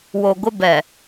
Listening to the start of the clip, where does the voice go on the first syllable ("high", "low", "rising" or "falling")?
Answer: low